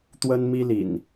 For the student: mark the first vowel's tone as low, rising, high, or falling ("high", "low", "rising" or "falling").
high